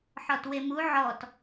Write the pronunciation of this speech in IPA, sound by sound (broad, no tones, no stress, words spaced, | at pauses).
ħɔtwemu ʕɔt